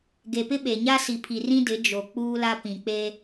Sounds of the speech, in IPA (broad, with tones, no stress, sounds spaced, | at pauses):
ɡ e˨ p ɪ˦ ɓ e˨ ɲ a˦ s i˨ pʰ i˨ r ĩ˦ d ɪ˨˦ d͡ʒ o˨ k͡p uː˦ l a˦ p ĩ˨ k͡p e˦